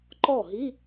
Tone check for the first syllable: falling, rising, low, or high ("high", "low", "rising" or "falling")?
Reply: falling